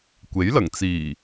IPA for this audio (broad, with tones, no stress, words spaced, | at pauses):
kʷe˨˥jlɐ˨˩ŋt͡siː˨˩